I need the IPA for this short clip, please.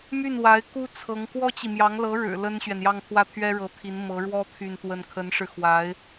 my˥˩nwa˧˥ɪ̯ ku˥ t͡sʰɤ˧˥ŋ kwɔ˥t͡ɕi˨mjɑ˧˥ŋ lɤ˧˥ɻɻ̩˨˩ lə˥nɕɥɛ˨njɑ˥˧ŋ t̪ʰwä˥˩t̪ʰɥɛ˥ɻɤ˧˥t̪ʰi˧˥n mɤ˧˥ɻwɔ˥ t̪ʰy˥˧nt̪wə˥˩n kʰə˧˥nʂɻ̩˧xwa˧˥ɪ̯

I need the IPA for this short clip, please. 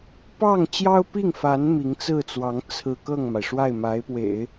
pɑ˥˩ŋt͡ɕjɑ˥ʊ̯pi˥˩ŋfa˧˥n mi˧˥ŋt͡sɹ̩˥˩t͡swɑ˧˥ŋ t͡sʰɹ̩˥˧ kɤ˥˩ŋma˩ɪ̯ʂwa˥˩ɪ̯ma˧˥ɪ̯ pwḛ˨˩˦ɪ̯

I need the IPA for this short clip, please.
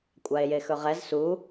kʷʼae̯jexɵʁɛz su

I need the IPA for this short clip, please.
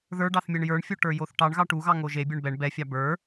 ðə˞ɖɑθmʲɛɳ jə˞ɳfʲo ʈə˞joθʈɑɳ ɣɑʈuɣɑ ŋoʒe bʲə˞ɳbɛɳ bɛfʲɑ bə˞

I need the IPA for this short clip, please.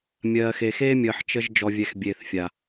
mʲɜː˨xe˨ xeː˦mʲəː˨ħ t͡ʃə˦ʒ d͡ʒɔ˨vʲɛ˨xbʲeː˨θfʲa˨

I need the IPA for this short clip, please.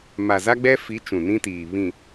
ma˨za˦ɡ͡bɛ˦fi˨˦ t͡ʃũ˨nĩ˦tiː˨ βĩ˨

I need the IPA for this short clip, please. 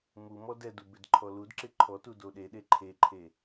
mumɔ dɛdu bɪdǃʰɔludǁɪ ǃʰɔtu doɗeɗe ǃʰeǃʰe

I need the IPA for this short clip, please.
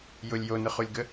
jʊlʲ jonʊχulʲɡə

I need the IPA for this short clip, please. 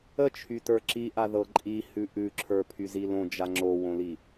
ət͡ʃʰytə˞ ǁiʔaðɤ ǃʼihʉ ʔʉǁʰə˞pʰyzi lõd͡ʒa ŋ͡ǁowõli

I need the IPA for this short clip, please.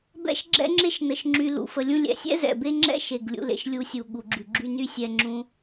bɛ̰˦ʃɡ͡ǁɛ̰˦ŋ͡ǁe˦ʃ nə˩ʃŋ͡ǁy˨ lṵ˩fə˨lʲũ˦lʲɛ̰˨ sʲɛ̰˥zɛ̰˩be˦ŋ͡ǁɛ̰˥ ʃe˩ɡlʲṵ˨lḛ˩ʃ lʲu˦sʲu˩ ɠu˩ɡ͡ǁy˩ɡ͡ǁy˦ ny˥ sʲɛ˦ŋ͡ǁũ˥

